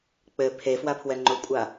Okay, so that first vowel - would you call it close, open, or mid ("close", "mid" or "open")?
mid